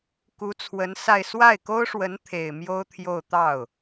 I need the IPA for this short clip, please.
k u˧˥ t͡sʰ w ə˧˥ n s a˥˧ ɪ̯ s w a˥˩ ɪ̯ k o˥ ʊ̯ ʂ w ə˧˥ n t̪ʰ e˨˩ ɪ̯ m j o˥ ʊ̯ t̪ʰ j o˥˧ ʊ̯ t̪ ɑ˥˩ ʊ̯

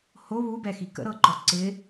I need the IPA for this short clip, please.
h o β u b ɛ x i k ə̰ ɾ ɤ ǃ ɔ ǀ ɪ

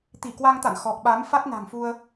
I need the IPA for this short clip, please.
t̪ i˧˩ k w a˧ ŋ t̪ a̰˧˨ n x ɔ˨˩ k̚ ɓ a˨˦ m f a˦˥ t̚ n a̤˨˩ ŋ f u˧ ə̯

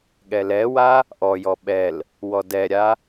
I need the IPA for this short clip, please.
ɠ ɛ l ɛ w a | ʔ ɔ j ɔ ɓ ɛ l | w ɔ d ɛ ɾʲ a

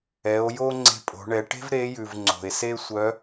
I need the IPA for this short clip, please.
ɛ˩˧ o̯ j o˥ ŋ͡ǀ e̤˧ pʼ o̤˩˧ ɳ ɛ˩˧ ʈ e̤˥ v ɾ e˧˥ j ʉ˩ v ŋ͡ǀ o̤˩ e̯ s e˥ sʷ œ˧˥

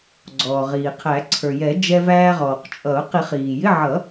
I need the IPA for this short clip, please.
ɡ͡ǀ ɔː˩ ʁ iː˩ qʰ æ˨˩˦ ǀʰ ə˞˩ j ɛ˨˩˦ d͡ʒ ɛ˧ v æː˧ ʁ ɔː˩ q t͡ʃʼ ʌ˨˩˦ ʊ̯ q i˨˩˦ χ iː˩ j ɪ˧˥˧ ʕ ʌ˨˩˦

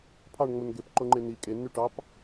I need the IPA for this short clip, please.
pʰ ɑ ɳ ŋ͡m o n ɡ e p ǃ o ŋ͡ǃ e n i kʼ e nː y ʈ ɑ p

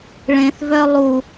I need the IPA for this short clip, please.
ɭ ẽ θ v œ lˠ u

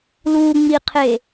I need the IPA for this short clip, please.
l u ŋ͡m i qʰ e

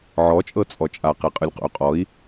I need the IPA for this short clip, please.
ʕ ɔ t͡ʃʼ ɤ t͡sʼ ɔ t͡ʃʼ a q e qʼ ɯ lʲ q ṵ y̯ qʼ ɔ i̯

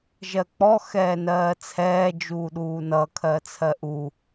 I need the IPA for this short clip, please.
ʒ ɜ k͡p ɔ x ɛː n ɜː t͡sʰ ɛː d͡ʒ uː ɗ uː n ʌ kʰ ɜ t͡sʰ ɜ ʔ u

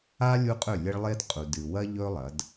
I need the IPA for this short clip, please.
a˦ lʲ u˦ qʼ ɵ˦˨ lʲ e˦ ɭ lˠ e˦ d qʼ u˨ d ɨ˨ w ɐ˦ ʎ ɵ˦ lˠ ɐ˨˦ d

